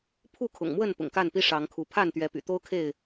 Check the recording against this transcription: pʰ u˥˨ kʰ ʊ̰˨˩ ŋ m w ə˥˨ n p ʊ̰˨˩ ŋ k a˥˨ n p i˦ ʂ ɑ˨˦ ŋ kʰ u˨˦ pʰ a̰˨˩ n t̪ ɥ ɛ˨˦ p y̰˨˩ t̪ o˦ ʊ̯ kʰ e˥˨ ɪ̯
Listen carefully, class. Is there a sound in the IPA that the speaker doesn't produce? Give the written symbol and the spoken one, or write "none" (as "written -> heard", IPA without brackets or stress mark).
a̰˨˩ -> a˥˨